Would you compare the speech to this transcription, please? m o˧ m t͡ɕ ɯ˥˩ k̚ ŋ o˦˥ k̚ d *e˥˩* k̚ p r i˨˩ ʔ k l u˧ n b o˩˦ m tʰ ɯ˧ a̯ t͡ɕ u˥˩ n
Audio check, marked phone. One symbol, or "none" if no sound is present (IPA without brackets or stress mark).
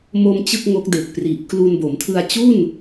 e˨˩